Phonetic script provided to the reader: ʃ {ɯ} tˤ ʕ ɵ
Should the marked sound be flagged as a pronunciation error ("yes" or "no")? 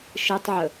no